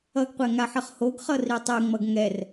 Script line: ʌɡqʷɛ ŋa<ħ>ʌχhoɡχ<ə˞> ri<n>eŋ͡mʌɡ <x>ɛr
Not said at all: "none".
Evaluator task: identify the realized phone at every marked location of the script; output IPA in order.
ħ, ʌ, tˤ, ŋ

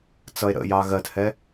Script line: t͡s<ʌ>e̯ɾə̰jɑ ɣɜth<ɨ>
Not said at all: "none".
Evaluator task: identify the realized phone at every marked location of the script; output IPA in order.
ʌ, ɛ

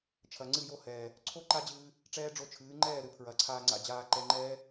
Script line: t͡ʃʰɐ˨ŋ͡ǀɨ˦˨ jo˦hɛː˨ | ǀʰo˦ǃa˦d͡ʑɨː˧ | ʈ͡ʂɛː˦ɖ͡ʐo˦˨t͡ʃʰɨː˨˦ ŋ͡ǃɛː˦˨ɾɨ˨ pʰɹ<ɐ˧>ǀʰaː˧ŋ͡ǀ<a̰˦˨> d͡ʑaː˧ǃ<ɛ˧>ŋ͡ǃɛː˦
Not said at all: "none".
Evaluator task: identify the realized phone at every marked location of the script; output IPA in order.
ɐ˨, a̰˧, ɛ˧

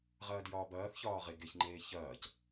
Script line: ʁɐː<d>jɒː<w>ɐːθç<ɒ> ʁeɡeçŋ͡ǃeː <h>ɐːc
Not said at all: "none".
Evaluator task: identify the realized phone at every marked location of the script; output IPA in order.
d, b, ɒː, ç

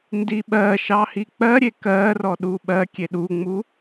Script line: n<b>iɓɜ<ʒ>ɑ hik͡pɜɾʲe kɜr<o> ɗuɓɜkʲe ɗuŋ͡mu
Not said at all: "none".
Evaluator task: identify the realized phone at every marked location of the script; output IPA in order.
d, ʃ, ɔ

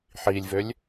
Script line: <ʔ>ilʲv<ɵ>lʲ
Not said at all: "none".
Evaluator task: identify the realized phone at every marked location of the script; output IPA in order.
ħ, ø

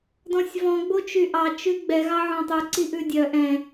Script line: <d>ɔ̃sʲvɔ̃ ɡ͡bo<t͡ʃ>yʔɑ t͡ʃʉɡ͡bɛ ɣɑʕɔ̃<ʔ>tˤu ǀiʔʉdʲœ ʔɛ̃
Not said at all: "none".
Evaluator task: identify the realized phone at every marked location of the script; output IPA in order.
d, t͡ʃ, none

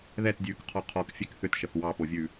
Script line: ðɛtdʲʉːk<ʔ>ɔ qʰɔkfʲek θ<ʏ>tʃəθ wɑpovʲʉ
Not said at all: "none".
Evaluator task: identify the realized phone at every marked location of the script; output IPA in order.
qʰ, ʏ

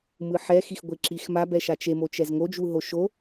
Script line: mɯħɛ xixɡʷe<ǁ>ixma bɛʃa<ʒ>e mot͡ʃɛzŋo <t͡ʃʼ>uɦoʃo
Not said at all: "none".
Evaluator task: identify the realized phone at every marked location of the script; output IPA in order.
ǁ, t͡ʃ, d͡ʒ

